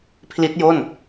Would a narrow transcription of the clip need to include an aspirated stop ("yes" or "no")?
yes